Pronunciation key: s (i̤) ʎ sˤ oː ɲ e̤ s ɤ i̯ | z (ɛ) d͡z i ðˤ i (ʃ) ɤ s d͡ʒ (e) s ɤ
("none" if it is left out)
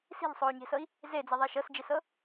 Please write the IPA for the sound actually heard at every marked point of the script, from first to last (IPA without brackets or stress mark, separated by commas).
i̤, e, ʃ, e